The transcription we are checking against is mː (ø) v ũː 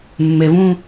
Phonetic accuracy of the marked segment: incorrect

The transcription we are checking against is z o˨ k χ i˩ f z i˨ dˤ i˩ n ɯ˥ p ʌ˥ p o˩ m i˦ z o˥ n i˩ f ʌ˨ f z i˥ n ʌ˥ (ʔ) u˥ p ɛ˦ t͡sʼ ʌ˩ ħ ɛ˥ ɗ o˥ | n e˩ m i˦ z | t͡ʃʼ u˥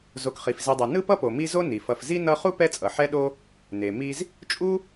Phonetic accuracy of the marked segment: incorrect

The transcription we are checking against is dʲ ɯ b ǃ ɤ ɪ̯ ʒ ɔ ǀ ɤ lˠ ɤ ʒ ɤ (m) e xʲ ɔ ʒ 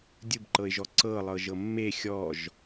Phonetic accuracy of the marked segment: incorrect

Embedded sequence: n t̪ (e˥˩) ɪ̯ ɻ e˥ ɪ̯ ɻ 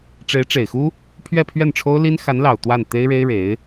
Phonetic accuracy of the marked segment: incorrect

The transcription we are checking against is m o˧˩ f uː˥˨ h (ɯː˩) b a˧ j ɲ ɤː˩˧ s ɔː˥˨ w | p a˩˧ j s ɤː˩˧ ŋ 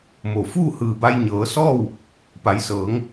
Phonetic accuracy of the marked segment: correct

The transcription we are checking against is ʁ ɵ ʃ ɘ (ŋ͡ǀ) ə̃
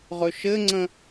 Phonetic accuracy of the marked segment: correct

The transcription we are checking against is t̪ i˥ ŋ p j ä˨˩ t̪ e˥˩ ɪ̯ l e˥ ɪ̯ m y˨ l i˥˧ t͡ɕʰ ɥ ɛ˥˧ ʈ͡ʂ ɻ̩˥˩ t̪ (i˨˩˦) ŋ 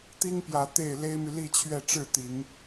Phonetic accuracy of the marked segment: correct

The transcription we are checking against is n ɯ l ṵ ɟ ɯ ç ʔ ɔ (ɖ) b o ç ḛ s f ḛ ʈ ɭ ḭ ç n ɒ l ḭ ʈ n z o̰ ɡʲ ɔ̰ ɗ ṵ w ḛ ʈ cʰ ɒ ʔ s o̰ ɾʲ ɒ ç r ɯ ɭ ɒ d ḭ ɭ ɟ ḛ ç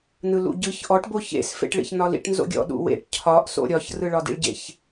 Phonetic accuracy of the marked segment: incorrect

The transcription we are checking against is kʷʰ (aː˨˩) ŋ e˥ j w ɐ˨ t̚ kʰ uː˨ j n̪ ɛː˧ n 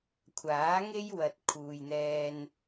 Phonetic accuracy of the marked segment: incorrect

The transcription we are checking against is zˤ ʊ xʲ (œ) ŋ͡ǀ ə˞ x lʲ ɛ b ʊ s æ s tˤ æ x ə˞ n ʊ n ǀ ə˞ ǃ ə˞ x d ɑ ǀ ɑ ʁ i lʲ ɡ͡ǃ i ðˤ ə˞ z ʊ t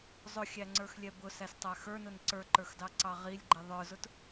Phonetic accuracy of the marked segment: incorrect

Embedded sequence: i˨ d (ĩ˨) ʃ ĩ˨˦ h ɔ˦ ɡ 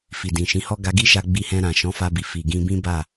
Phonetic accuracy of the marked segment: correct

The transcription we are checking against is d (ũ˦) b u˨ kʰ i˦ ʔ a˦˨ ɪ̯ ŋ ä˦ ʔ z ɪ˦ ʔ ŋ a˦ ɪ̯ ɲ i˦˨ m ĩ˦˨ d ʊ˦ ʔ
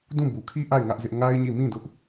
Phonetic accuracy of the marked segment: incorrect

